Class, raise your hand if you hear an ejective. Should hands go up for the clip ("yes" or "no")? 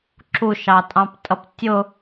yes